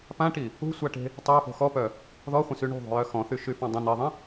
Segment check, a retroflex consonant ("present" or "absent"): present